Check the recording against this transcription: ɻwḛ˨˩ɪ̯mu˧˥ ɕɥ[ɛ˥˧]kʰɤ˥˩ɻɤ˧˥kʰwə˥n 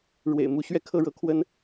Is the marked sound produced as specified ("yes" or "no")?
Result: yes